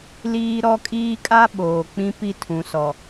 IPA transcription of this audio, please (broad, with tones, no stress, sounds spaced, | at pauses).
l iː˦ ɾ ɔ˦ kʼ iː˦ kʼ a˦ ɓ oː˨ k͡p ĩ˦ p i˦ tʰ ũ˨ s ɔ˨